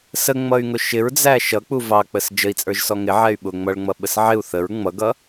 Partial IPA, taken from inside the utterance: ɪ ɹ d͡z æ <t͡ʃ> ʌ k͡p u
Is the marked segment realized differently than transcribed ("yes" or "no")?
yes